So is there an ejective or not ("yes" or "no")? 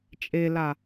yes